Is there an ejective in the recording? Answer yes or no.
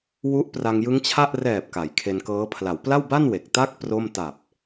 no